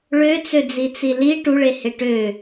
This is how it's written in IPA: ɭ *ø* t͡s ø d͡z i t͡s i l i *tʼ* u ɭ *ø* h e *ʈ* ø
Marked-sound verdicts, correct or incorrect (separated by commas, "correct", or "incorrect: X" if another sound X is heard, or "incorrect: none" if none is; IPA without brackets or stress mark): correct, incorrect: ʈ, incorrect: e, correct